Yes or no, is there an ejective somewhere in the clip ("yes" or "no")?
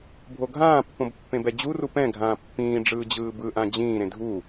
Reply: no